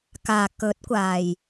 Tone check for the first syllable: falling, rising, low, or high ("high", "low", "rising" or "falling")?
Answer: low